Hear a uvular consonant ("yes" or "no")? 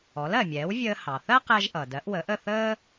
yes